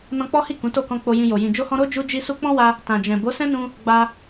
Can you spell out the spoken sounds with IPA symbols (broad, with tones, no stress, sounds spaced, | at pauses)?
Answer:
n ɔ̃˧ k͡p ɔ˦ h i˦˨ k ũ˨˦ t o˦˨ k ɔ̃˧ k͡p o˧ j ĩ˧ j o˨ j ĩ˨ d͡ʒ o˧ h ɔ̃˧ ɾ o˦ d͡ʒ u˧ d͡ʒ i˧ s u˧ k͡p ɔ̃˦ w a˧ | t ã˨ d͡ʒ ɛ̃˨ b o˨˦ s ɛ̃˦ n ũ˧ | ɡ͡b a˧